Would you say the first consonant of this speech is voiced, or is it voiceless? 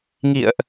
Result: voiced